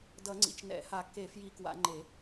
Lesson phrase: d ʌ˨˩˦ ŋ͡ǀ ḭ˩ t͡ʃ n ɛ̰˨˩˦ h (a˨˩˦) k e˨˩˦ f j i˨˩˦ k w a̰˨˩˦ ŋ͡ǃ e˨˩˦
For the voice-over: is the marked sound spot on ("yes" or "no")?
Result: yes